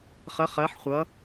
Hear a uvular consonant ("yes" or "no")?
yes